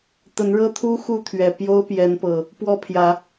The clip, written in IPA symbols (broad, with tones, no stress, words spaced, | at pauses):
t̪ə˨˦nɻɤ˦t̪ʰu˦ xu˥˨t̪ʰɥɛ˨˩ pjo˦ʊ̯pjɛ˨˦npɤ˨˩ | pwɔ˥˨pʰjä˨˦